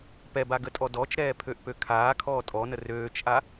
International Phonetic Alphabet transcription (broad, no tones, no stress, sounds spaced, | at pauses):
p ɛ b a ɡ ə tʼ ɔ d ɔ t͡ʃ ɾ ɛː pʰ ø ʔ p ø kʰ aː kʰ ɔː tʼ ɔ n ə r øː t͡ʃ ʔ a